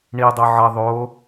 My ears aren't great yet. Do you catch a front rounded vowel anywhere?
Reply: no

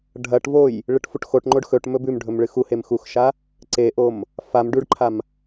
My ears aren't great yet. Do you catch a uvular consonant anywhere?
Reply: no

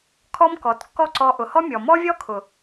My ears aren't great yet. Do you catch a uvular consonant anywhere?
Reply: no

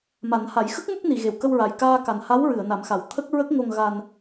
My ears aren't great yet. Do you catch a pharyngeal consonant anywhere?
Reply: no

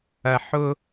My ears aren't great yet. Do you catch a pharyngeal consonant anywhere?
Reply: yes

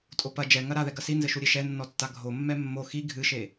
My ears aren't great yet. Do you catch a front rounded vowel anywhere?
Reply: no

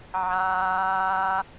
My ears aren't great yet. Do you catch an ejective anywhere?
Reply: no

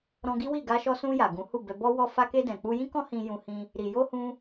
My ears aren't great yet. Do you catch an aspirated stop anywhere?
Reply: no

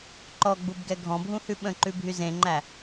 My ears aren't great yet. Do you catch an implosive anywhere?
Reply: yes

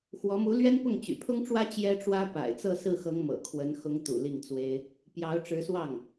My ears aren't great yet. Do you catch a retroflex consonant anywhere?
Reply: yes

